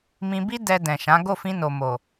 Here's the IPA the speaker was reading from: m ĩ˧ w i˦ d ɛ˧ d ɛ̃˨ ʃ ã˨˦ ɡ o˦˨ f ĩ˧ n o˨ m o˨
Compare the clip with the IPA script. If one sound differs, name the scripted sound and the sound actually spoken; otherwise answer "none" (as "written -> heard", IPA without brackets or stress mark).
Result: w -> b